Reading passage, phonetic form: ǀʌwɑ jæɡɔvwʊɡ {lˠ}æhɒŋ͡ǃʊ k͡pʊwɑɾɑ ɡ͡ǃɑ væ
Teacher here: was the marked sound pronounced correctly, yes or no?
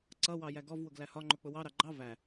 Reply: no